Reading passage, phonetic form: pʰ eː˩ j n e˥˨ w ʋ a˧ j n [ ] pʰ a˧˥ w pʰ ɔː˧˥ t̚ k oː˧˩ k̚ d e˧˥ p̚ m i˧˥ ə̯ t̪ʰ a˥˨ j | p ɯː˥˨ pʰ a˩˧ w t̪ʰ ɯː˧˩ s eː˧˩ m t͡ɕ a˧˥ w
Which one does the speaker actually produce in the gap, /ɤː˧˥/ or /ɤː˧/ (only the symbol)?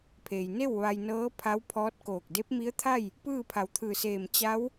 ɤː˧˥